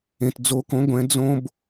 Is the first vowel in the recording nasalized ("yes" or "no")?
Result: yes